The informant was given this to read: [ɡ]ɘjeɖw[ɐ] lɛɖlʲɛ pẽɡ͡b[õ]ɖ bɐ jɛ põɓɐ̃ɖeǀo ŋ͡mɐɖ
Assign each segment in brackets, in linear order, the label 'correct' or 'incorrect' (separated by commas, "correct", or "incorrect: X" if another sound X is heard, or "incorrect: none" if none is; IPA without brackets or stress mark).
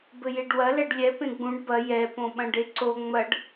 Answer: incorrect: b, correct, incorrect: ũ